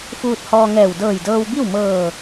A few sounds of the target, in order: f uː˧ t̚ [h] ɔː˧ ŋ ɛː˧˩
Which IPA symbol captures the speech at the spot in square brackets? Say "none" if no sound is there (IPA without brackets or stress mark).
h